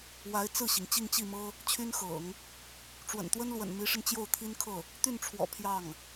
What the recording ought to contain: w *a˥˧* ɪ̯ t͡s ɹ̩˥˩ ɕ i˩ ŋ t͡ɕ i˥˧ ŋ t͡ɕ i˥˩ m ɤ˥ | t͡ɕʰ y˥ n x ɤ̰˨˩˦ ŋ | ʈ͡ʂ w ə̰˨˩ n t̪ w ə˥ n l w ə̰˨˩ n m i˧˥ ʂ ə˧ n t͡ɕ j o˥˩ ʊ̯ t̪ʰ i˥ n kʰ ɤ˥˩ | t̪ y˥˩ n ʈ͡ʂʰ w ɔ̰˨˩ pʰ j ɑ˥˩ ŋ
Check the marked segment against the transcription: incorrect: a˧˥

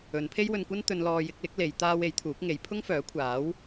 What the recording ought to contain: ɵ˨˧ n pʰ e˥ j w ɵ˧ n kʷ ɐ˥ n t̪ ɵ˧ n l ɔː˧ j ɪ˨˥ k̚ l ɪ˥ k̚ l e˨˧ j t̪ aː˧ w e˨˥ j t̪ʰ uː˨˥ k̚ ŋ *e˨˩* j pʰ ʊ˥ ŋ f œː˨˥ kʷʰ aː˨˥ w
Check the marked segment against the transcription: incorrect: e˨˧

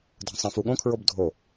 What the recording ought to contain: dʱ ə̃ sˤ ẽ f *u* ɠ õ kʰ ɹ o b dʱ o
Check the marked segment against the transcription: correct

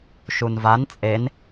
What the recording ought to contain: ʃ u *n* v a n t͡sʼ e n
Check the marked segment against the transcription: correct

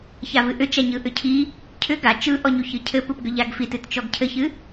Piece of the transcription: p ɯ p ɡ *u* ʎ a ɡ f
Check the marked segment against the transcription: incorrect: ʏ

